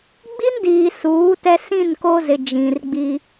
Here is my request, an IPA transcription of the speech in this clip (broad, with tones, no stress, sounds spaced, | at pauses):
ɡ͡b i˦ n d iː˨ s uː˨˦ t ɛ˦ s ĩ˦˨ n k o˦ z ɪ˨ d͡ʒ ĩ˨ r ɡ͡b i˦